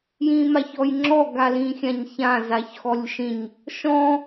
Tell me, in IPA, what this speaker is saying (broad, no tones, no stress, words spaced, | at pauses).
jĩmaçɔjŋ͡ǁɔ ɡalĩxʲãɲçã zaçxɔlʲʃĩɲ | ʃɔ̃